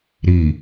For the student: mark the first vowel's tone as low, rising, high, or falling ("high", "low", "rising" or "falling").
low